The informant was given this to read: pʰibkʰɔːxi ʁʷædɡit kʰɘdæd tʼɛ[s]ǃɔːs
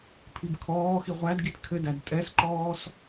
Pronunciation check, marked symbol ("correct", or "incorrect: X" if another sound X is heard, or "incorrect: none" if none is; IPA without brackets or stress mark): correct